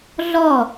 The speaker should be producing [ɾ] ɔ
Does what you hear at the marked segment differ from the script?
yes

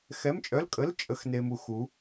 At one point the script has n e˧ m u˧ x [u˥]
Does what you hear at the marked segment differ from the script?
yes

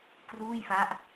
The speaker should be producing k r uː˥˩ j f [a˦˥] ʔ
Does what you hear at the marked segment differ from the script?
no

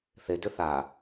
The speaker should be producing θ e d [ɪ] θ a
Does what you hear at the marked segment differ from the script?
yes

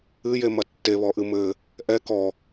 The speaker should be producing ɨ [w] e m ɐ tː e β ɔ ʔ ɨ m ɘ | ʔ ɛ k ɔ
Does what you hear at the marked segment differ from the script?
yes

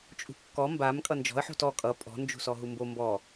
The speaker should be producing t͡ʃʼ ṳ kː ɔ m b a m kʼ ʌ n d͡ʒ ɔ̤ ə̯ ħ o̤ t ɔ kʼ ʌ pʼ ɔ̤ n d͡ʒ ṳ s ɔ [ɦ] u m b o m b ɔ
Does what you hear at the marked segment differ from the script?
no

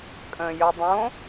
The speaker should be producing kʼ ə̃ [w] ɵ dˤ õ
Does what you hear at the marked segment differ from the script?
yes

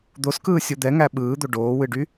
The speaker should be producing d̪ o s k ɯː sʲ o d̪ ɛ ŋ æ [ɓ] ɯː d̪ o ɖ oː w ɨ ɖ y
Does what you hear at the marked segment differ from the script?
no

